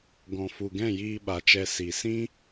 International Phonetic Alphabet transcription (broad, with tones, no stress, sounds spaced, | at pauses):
ɡ ɔ̃˨ f u˨ ɡ ɛ̃˦˨ j iː˧ ɓ a˨ t͡ʃ ɛ˧ s i˨ s ĩ˦